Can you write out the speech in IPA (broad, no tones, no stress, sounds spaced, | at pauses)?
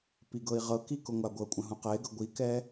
p i ɡ ɤ i̯ ʁ ɤ k i k ʊ ŋʷ a ɡʷ ɤ kʷʼ ə̃ ɦ ũ q ɪː ɡ ɤ ɡʷ i k ɛː